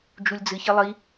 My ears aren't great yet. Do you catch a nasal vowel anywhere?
no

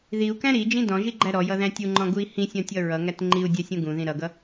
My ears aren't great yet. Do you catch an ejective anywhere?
no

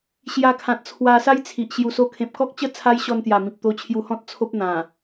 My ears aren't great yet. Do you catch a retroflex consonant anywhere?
no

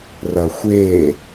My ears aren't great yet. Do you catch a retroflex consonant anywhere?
no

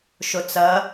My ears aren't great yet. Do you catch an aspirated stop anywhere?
no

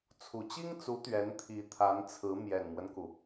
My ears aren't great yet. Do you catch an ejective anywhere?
no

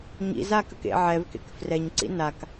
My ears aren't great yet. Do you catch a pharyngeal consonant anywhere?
yes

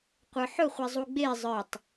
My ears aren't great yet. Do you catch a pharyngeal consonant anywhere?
yes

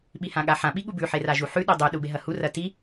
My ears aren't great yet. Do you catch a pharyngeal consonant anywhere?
yes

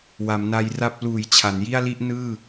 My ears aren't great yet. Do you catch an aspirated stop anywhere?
yes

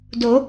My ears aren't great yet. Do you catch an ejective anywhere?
no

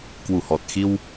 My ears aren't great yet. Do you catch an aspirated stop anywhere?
no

